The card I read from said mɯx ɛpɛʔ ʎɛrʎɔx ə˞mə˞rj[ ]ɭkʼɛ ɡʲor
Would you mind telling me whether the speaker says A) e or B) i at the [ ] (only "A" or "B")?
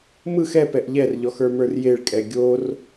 A